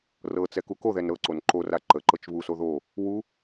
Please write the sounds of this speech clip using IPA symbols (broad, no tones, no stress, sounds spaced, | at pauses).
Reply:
r ɤ t͡s ɛ k u k o ð ɛ n ɾ ɤ ǀ o n ǃ o r a ǃ ə ǃ ɤ t͡ʃ β u s o ð o | w u